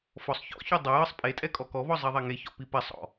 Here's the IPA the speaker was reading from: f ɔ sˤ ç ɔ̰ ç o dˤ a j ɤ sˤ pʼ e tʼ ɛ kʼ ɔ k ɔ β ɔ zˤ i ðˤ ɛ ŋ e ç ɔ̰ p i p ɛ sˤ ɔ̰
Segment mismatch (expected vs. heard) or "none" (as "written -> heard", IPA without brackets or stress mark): none